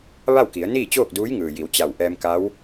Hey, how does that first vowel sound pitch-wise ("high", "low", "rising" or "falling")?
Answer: falling